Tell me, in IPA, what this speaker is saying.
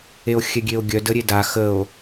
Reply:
e o̯ xʲ ɛ ɡʲ e o̯ ɡʲ œ d ə ɾʲ e d a x ə o̯

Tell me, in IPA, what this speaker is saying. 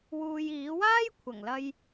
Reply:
w uː˧ j iː˨˥ w aː˥ j kʷʰ ɐ˨˩ ŋ l ɐ˧ j

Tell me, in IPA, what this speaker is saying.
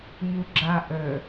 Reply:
ɲ u ɡ͡ǁ a ʔ ə

